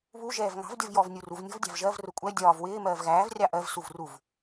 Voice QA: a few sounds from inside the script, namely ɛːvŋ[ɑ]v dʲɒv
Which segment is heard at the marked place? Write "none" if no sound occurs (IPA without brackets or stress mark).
ɑ̤